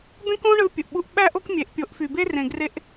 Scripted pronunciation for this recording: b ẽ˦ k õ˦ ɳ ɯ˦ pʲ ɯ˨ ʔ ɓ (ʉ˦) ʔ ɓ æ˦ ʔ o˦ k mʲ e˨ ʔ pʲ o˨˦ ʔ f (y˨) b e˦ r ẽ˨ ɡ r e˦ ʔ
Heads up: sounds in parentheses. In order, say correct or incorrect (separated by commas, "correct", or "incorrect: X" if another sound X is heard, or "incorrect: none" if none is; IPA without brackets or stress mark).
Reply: incorrect: u˦, correct